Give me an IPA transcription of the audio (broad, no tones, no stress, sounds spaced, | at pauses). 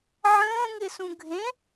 ʕ ə̃ː ŋ ɪ s ũ ɡʱ ẽ